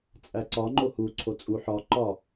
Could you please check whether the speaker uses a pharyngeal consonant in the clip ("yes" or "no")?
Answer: yes